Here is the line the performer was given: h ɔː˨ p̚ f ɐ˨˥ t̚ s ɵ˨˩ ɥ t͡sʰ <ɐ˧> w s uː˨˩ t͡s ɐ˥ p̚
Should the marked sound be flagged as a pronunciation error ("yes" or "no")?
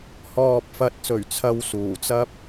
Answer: no